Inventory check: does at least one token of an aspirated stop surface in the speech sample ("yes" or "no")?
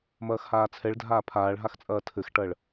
yes